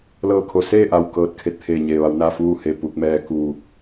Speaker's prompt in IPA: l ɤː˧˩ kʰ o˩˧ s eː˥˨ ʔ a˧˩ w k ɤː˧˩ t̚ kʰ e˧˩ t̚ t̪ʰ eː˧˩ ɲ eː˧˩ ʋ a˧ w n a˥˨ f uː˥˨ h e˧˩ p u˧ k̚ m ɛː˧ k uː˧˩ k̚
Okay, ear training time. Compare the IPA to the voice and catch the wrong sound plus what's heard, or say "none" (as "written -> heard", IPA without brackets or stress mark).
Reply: none